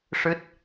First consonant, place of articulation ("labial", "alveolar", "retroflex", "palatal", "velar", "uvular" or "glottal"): retroflex